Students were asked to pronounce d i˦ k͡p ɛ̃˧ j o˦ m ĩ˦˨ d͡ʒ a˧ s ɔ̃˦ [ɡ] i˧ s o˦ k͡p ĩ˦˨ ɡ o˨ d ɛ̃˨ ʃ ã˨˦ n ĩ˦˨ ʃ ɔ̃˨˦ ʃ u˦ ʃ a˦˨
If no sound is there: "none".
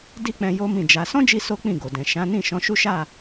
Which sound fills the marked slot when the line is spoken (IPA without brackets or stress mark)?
d͡ʒ